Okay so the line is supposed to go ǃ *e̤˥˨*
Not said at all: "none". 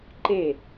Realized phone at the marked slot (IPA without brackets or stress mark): e˥˨